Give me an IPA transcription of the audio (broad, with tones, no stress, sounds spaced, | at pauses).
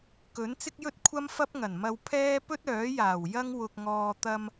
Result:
k ɵ˨˥ n t͡s ɪ˥ k̚ j ɵ˥ t̚ kʷʰ ɐ˥ m f ɐ˥ p̚ ŋ ɐ˨˩ n m ɐ˧ w pʰ ɛː˥ p ɵ˥ t̚ œː˨˥ j aː˨˩ w j ɐ˥ ŋ w ʊ˧ k̚ ŋ ɔː˧ t̪ ɐ˧ m